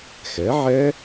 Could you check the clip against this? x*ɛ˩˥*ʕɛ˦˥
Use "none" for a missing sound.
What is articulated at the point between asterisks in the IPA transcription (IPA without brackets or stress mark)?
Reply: ɛ˩˥